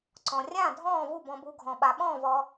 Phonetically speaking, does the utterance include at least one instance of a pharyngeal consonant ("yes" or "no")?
no